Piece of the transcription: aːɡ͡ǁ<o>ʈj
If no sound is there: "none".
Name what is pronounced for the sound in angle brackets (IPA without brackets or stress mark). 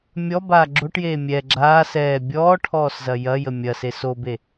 o